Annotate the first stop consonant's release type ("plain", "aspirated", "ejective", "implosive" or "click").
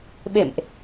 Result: implosive